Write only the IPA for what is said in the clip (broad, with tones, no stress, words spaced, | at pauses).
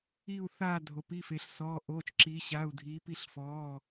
i˧˩u̯θaː˧˩ dʱo˩pi˩˧˩fe˩ɬ sɔː˩˧˩ʔoː˩˧˩t͡ʃǁiː˩˧ ɕa˩˧˩u̯dʱi˩˧ pi˧˩ɬfɔː˩˧˩